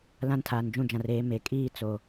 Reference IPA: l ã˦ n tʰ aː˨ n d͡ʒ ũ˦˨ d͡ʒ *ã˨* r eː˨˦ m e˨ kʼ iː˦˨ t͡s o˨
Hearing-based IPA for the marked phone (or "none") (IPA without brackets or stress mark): ã˨